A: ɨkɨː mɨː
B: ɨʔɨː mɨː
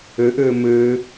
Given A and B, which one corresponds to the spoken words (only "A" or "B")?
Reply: B